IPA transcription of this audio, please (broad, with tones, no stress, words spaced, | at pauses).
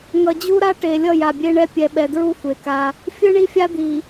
ŋʌ˨d͡ʑu˦ɾa˦ ʈe˨ lʲʌ˦˨ja˨bʲe˦ ɳɛ˦ pʲɛ˨ɓɛ˨dɹu˦ xʷe˨ka˦ | fʲɯ˦ɳi˦fʲa˦ d̪i˨